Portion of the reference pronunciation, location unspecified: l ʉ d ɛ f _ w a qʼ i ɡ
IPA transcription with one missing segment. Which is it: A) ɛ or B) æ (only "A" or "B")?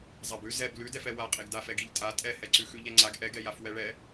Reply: A